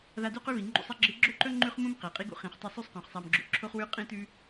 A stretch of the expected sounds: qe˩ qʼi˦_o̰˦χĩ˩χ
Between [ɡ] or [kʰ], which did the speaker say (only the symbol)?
ɡ